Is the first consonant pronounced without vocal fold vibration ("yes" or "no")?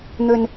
no